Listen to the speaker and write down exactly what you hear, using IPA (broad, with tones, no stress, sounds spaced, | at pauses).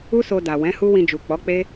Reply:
u˦ s o˧ d a˨ w ɛ̃˨˦ h u˦ w ĩ˧ d͡ʒ u˨ k͡p ɔ˨˦ k͡p e˦